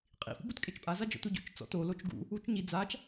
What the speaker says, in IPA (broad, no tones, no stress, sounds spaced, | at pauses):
qʼ ḭ f ṵ b u t kʼ e t͡ʃ pʼ a z a d͡ʒ ɔ̰ t u ɟ o̰ t͡ʃ t͡s ɔ̰ t o l o t͡ʃ ɡ ṵ | u t͡ʃ ɲ i d͡z a t͡ʃ